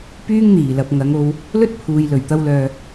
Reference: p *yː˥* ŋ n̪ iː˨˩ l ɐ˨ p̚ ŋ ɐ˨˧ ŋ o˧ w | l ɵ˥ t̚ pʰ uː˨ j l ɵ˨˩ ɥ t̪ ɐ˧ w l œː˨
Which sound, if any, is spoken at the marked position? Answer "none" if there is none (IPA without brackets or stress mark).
yː˥